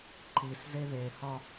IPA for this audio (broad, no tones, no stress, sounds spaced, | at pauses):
ǃ i s z e ð e h ɒ